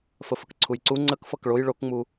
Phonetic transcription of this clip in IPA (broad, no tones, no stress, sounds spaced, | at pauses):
f ə f ə k ǀʰ u j ǀ u ŋ͡ǀ ə k f ʌ k ɭ o j ɭ o k ŋ͡m u